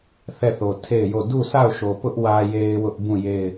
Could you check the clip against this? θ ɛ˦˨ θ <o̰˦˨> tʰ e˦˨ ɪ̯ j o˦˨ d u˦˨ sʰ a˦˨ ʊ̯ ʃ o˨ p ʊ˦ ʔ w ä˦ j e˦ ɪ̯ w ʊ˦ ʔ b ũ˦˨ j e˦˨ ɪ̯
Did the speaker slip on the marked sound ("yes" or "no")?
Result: yes